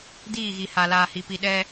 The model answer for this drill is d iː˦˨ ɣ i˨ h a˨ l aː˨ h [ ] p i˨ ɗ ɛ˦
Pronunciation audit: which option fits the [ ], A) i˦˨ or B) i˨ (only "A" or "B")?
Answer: B